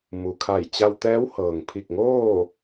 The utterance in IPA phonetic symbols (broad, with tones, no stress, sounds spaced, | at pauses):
m u˩ kʰ a˧˩ j t͡ɕ a˧ w t̪ ɛː˧˥ w h ɤː˩ ŋ pʰ i˧˩ k̚ ŋ oː˥˨